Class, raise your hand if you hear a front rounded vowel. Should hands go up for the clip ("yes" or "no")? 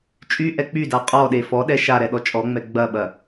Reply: yes